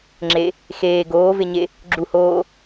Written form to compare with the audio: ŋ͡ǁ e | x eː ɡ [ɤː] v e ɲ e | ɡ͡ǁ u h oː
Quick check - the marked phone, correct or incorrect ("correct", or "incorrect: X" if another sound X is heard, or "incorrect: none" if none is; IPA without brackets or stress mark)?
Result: incorrect: oː